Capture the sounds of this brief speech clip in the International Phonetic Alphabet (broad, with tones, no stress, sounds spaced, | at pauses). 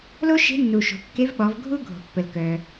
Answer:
l o˥ ʃ e̤˧˥ nː u˩ ʃ o̤˩ kː e˧˥ v ɓ ɔ˩˧ v ɡʱ u˥ ɡʱ o̤˩ pː ə˩ l k œ˩